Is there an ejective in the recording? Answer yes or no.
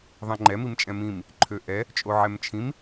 yes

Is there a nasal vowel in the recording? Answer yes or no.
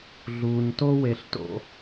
no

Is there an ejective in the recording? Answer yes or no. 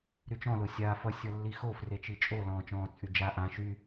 yes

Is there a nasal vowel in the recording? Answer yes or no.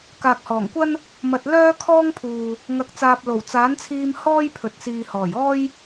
no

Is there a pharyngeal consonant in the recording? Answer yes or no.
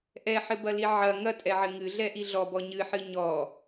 yes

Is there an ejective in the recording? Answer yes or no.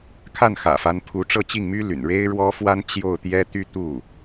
no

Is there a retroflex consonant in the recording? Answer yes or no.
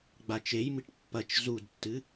yes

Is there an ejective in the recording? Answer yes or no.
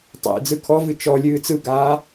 no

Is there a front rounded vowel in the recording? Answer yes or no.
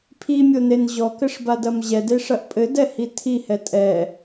no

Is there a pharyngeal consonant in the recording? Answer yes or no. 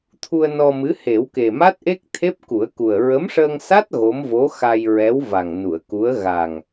no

